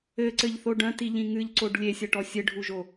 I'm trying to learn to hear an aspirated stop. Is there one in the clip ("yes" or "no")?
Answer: no